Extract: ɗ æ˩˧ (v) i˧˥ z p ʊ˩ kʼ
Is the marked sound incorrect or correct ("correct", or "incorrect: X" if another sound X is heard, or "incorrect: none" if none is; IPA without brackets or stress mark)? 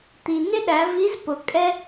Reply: correct